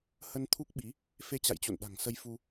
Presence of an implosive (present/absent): present